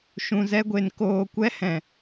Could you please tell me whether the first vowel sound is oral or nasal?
nasal